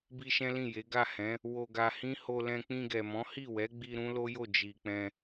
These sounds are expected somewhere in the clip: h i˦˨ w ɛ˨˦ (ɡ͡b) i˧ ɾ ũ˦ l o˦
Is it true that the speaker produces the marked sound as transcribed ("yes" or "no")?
yes